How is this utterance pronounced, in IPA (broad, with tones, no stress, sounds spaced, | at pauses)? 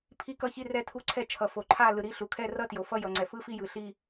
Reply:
pʰ i˥˧ k ʌ˥˧ ç i˥˧ r ɛ˥˧ tʰ u˥˧ ǀʰ ɛ˥˧ t͡ʃʰ ʌ˨ f o˨ ǃʰ a˥˧ l ɯ˨ ɾ i˥˧ ɬ u˨ kʰ ɛ˥˧ r ʌ˥˧ t j o˨ f ʌ˥˧ j ʌ˨ ŋ͡ǀ ɛ˨ f ɯ˥˧ f i˥˧ j ɯ˨ ɬ i˥˧